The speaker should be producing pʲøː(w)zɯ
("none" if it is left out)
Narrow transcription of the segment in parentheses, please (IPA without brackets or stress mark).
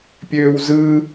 w